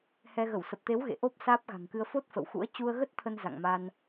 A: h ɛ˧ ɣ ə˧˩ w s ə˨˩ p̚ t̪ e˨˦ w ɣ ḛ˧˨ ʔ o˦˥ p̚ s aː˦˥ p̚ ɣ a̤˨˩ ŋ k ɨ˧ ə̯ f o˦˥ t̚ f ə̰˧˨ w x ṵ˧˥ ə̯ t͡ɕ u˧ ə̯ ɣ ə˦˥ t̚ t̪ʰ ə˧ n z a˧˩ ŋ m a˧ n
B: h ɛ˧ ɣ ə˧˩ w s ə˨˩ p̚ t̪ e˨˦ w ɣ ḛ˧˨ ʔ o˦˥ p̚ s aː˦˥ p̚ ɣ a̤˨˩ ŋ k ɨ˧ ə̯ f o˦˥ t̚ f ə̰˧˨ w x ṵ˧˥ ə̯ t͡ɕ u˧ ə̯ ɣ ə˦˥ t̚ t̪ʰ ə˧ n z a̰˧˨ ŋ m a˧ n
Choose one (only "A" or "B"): B